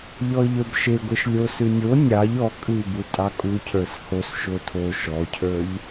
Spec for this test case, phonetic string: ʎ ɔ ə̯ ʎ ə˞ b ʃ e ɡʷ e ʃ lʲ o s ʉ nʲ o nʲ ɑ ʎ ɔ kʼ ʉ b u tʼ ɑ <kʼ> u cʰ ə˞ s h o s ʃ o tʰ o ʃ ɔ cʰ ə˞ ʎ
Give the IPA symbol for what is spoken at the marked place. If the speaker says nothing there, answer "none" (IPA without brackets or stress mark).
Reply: kʼ